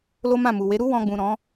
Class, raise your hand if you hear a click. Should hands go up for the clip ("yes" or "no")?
no